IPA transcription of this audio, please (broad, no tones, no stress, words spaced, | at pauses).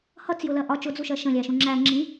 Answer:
hʌt͡sjʊlɜ ʔɒ t͡ʃʊd͡zuʃɜ ʃə̃lʲæʃũ ŋ͡ǁæ ŋ͡ǁĩ